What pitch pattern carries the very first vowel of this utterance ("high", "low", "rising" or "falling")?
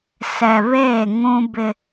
low